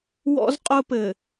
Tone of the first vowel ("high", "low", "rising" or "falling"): high